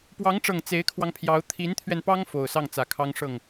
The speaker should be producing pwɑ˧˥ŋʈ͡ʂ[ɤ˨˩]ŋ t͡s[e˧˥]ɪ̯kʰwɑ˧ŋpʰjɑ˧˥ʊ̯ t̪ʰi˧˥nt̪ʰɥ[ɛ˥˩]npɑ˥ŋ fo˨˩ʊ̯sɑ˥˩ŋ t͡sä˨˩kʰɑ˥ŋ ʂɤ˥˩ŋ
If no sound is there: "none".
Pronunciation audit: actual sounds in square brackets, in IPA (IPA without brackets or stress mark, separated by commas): ɤ˨˩, e˧˥, ɛ˧